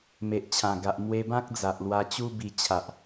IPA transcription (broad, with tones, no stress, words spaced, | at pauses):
me˨ʔt͡ɕʰã˨˩ɡa˨ʔ mwe˧bã˦k̚ d͡za˨ʔlwa˧t͡ɕu˦bi˧ t͡ɕʰa˨ʔ